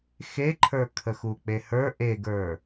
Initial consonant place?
velar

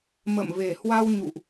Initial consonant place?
labial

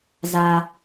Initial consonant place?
alveolar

